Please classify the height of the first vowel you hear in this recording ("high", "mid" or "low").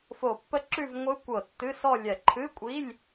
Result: mid